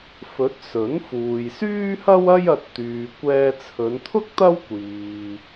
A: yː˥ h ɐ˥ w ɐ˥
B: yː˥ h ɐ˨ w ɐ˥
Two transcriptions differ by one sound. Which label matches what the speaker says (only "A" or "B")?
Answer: A